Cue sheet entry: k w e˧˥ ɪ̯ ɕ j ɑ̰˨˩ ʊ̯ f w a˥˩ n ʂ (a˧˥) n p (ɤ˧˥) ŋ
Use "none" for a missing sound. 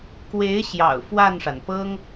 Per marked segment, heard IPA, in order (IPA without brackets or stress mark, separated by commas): a˩, ɤ˥